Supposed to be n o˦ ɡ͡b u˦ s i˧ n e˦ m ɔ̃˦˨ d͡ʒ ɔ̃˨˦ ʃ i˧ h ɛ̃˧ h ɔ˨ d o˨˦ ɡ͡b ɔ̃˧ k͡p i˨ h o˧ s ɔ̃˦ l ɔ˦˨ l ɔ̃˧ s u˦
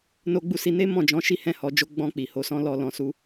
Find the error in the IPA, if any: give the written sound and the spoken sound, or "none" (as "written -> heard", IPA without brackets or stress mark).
d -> d͡ʒ